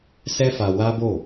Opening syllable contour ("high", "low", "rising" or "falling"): high